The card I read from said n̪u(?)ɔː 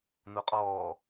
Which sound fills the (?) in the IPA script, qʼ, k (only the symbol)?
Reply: qʼ